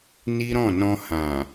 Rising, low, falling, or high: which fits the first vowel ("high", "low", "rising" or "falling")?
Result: high